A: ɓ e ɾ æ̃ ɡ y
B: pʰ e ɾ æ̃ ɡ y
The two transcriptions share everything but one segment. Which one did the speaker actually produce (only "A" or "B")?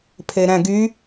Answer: B